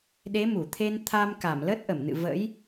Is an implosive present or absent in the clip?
present